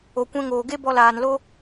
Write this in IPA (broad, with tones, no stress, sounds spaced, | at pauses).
o˨ kʷ ɛ̃˧ ŋ oː˨ ɡ e˦ b ɔ˧ l aː˨ n l o˦